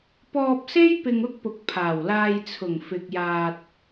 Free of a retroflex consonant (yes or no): yes